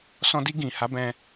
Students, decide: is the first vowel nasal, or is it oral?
nasal